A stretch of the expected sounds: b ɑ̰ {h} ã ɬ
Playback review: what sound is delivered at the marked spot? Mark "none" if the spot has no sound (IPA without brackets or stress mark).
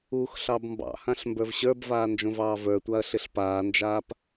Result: h